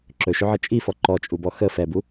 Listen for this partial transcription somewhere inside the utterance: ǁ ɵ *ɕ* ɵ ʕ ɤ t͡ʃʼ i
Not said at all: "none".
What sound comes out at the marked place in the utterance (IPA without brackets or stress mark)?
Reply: ʃ